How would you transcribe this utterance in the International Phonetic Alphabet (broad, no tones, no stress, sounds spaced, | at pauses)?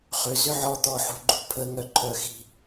χ ʏ z ʏ ʕ ɔ t̪ ɔ ħ ṳ ɡ͡ǃ ṳ pʰ ə ŋ œ ǃʰ œ x i̤